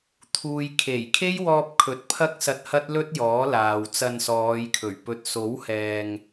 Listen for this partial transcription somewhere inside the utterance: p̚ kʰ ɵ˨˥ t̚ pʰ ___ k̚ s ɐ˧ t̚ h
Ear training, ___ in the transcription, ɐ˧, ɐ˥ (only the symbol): ɐ˥